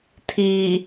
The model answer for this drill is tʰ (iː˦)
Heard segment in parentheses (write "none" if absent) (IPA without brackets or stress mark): iː˨